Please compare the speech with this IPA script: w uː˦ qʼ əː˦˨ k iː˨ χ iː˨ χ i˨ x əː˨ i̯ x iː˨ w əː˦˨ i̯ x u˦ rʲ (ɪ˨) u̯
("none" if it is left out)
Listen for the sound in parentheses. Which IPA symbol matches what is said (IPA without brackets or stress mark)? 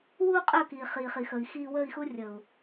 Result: ə˨